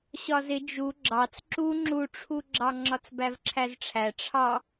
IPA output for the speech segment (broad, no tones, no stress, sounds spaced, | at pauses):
ɕ ɒ z ɪ d͡ʒ u ɡ͡ǁ ɑ t͡s ǁ u ŋ͡ǁ u ʈ͡ʂʰ u ɡ͡ǁ ɑ ŋ͡ǁ ɒ t͡s b æ v ǁʰ æ z ʈ͡ʂʰ æ ʈ͡ʂʰ ɑ